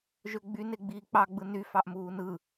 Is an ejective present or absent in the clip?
absent